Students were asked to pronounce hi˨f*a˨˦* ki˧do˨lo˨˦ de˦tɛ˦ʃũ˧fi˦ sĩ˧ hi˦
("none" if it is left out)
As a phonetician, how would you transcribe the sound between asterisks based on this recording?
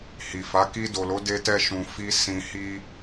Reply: a˨˦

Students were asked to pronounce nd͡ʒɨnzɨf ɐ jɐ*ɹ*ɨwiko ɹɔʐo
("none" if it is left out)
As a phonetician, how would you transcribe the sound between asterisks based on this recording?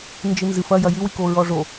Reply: j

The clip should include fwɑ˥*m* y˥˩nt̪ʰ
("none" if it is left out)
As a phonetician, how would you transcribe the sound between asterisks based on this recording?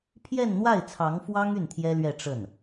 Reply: ŋ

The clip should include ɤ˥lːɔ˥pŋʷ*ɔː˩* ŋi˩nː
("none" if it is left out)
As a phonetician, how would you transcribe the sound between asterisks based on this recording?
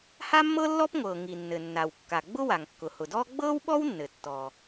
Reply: ɤː˩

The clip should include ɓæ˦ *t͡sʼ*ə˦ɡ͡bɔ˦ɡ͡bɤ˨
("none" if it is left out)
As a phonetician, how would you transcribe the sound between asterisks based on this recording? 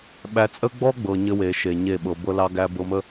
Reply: t͡sʼ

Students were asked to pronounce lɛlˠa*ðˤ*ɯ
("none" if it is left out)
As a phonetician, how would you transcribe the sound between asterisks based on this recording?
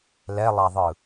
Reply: ðˤ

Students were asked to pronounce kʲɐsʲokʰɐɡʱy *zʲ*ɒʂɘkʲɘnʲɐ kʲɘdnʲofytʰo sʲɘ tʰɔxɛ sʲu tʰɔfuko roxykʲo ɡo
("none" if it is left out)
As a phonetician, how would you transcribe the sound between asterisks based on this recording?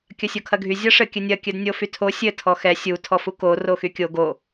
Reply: zʲ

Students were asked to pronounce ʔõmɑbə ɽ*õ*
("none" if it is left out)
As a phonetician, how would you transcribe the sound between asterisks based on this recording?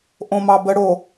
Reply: o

